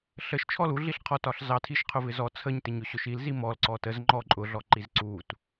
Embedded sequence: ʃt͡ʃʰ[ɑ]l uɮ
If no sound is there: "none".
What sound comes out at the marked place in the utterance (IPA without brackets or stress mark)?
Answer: ɔ